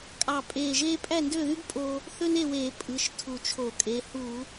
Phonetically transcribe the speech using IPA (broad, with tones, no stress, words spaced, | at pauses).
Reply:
kʼɑ˧˩ pʼeː˧˩ʒeː˥ pʼæ˥˨ndø˥˨ðy˥ɡ pʼo˧ | θø˥ne˥˨weː˧˩˧ pʼɯ˩˧˩ʃ tʰu˧˩t͡ʃʰo˧˩˧kʼe˩˧˩ hu˧˩˧